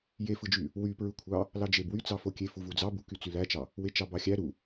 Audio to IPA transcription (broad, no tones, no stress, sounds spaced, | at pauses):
j e f ɯ d͡ʒ y | w y p ɹ ɯ kʷʰ ɑ | l ɑ d͡ʒ e b w y t͡s ɑ f o kʲ e f u v u d͡z ɑ b u k y t͡s y l æ t͡ʃ ɑ | w e t͡ʃ ɑ b ɑ xʲ æ ɾ u